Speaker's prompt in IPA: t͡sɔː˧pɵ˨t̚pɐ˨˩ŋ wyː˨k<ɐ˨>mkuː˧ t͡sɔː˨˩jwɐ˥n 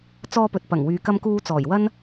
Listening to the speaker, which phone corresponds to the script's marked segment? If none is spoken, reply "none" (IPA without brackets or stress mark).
ɐ˧